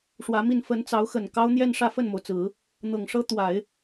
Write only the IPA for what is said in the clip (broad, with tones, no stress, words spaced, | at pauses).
ʂwä˧˥mi˥˩n fə˧˥n t͡sɑ˧˥ʊ̯xə˨˩n kɑ˥ʊ̯n̪jɛ˥˧n ʂä˥˧fə˥˩nmo˩ʊ̯t͡sɹ̩˨˩˦ | n̪ɤ˨˩ŋʂɤ˥ t̪wa˨˩˦ɪ̯